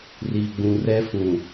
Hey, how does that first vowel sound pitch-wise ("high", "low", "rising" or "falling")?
low